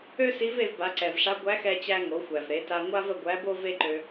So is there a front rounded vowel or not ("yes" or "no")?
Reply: yes